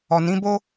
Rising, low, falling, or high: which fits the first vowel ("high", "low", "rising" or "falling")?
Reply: low